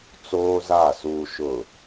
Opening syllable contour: high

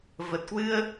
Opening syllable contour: low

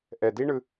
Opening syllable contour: low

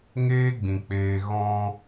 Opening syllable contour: high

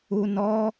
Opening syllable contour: low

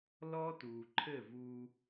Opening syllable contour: high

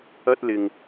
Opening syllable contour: high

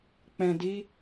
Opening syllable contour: low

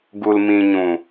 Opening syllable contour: low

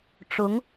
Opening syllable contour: rising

